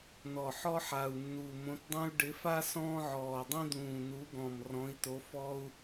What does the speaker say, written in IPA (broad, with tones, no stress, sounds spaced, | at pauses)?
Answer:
n ɔ˨˩ ħ ɔ˦ ħ a˨˩ u̯ nː u˨˩ m õ˨˦ t dˤ ĩ˦ u̯ ɖ ɪ˨˦ f a˦ s ɔ̃ː˦ ʕ ɔː˨˩ dˤ ĩ˦ d̪ ũː˨˩ n u˨˦ ɡ ɔ̃˨˩ m r ɔ̃˨˦ i̯ t o˨˦ f ɔː˦ u̯